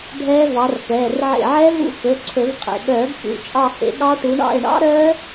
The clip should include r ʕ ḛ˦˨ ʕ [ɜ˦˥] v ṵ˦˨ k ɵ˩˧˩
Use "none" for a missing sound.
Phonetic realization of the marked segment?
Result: ɛ˦˥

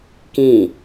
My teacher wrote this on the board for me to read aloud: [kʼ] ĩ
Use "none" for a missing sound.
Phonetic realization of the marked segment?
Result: k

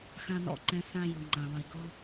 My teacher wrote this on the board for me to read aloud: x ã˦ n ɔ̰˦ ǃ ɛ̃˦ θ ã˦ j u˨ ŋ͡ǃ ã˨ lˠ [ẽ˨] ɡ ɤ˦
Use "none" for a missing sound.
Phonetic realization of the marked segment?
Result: e˨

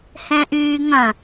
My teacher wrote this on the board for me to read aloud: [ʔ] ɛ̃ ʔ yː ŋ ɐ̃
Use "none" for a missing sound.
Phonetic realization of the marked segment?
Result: h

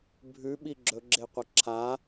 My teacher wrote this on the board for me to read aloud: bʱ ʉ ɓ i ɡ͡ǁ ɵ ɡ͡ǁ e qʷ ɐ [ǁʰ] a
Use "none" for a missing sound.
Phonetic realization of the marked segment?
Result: ǁʰ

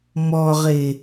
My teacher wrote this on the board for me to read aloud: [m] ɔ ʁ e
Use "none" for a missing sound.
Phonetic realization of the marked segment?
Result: m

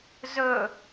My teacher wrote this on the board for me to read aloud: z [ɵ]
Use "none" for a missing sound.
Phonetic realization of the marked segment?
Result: ɵ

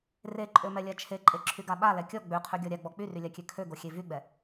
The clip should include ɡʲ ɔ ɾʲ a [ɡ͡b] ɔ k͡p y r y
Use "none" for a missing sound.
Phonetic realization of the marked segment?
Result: ɡ͡b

